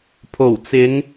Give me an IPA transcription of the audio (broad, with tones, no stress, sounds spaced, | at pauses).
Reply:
pʰ o˨˩ w t͡s ɪ˨˧ ŋ